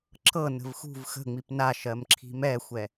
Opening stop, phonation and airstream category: click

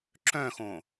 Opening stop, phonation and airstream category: click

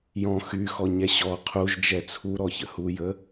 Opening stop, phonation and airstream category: aspirated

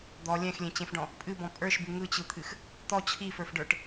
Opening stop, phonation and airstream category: plain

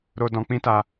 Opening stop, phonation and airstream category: plain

